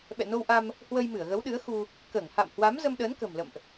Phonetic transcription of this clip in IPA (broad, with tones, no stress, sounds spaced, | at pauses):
ɓ ɛ̰˧˨ n o˧ w ʔ a˧ m | h w ə˧ j m ɨ˧˩ ə̯ ɣ ə˨˦ w ɗ ɨ˨˦ ə̯ x u˧ | k əː˧˩ ŋ h a̰˧˨ m h w a˨˦ m z ə˧ m ɗ əː˨˦ n k ə̤˨˩ m l ə̰˧˨ m ʔ